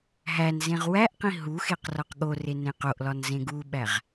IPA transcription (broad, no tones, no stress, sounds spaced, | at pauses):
ɦ æ n z ẽ ʁ w æ ʔ q ĩ ɦ u x e q r ɒ q ɠ o r e n ẽ q o ʔ l ɒ n z ẽ ɡ u ɓ æ ʁ